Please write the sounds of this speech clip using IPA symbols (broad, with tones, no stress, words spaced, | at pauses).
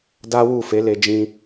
da˦wu˦˨fe˨˦ le˧d͡ʒĩ˧